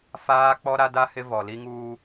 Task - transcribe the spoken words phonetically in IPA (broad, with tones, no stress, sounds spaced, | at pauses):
f aː˦ k͡p ɔ˦ ɾ a˦ d a˦ h ɪ˦ v ɔ˨ l i˦ ŋ uː˦